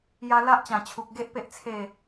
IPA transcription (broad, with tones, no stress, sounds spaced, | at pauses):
j a˧ l a˦ ʔ t͡ɕ ã˨˩ t͡ɕʰ u˨ k̚ ɡ e˦ ʔ p e˦ ʔ t͡sʰ e˥˧